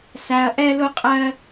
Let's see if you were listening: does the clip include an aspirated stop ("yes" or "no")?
no